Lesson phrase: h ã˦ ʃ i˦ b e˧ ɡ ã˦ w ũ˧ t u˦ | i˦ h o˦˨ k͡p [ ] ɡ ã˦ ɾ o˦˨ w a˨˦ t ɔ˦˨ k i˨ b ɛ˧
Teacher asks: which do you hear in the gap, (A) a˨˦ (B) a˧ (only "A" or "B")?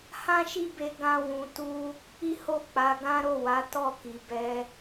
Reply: A